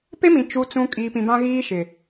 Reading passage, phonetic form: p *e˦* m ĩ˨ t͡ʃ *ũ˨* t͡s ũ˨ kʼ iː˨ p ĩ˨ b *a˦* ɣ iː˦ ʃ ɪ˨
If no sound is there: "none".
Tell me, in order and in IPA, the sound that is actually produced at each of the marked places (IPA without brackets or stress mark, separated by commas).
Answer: e˦, u˨, ã˦